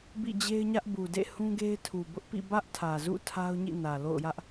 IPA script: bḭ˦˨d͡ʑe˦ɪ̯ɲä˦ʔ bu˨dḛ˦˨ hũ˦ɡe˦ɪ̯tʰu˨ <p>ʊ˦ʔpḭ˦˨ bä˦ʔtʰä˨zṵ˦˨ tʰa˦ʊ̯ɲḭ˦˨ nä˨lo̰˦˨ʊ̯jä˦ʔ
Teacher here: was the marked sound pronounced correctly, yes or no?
no